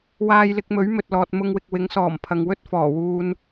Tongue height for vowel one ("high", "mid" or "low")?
low